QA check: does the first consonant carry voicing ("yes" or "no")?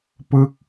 no